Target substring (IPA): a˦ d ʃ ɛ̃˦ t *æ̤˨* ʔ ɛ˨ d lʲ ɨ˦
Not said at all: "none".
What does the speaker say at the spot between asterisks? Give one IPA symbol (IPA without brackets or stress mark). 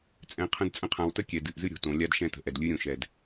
ə̤˨